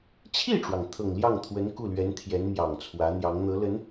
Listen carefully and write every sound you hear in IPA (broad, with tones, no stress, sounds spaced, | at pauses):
t͡ɕʰ i˥˩ ʈ͡ʂ w ɑ˩ ŋ t̪ʰ ɤ˨˩ ŋ l j ɑ˥˩ ŋ t̪ʰ w ə˧˥ n k u˥˩ l ɥ ɛ˧˥ n t̪ʰ j ɛ˧˥ n m j ɑ˨˩ ŋ t͡sʰ w ä˧˥ n̪ j ɑ˧˥ ŋ n̪ ɤ˧˥ l ə˧˥ n